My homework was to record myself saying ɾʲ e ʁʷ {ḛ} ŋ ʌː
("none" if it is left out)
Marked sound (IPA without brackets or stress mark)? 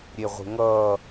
e̤